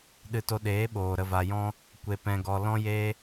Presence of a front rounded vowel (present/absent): absent